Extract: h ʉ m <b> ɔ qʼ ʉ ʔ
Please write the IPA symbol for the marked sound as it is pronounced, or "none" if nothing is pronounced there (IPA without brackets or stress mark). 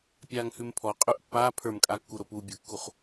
pʰ